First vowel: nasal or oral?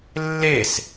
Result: oral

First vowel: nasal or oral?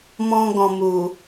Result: nasal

